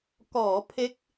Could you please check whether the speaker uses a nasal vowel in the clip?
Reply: no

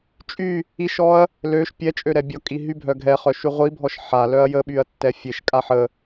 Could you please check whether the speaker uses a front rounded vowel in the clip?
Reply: yes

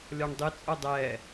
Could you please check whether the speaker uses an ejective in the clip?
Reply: yes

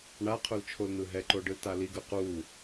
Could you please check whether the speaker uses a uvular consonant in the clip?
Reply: yes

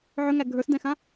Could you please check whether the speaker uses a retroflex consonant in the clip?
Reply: no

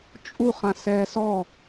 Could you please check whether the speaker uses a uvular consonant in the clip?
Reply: yes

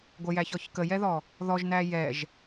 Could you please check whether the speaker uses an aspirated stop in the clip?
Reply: no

